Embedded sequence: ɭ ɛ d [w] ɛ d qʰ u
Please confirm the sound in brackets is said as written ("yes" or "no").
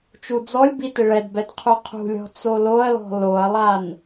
no